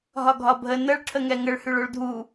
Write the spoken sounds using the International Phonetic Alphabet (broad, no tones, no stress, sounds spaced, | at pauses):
ɦ ɒ ɡʱ ɒ bʱ ə n ə ɭ ʈʰ ə ŋ ɛ ŋ ə ɭ h y ɭ o ɭ dʱ u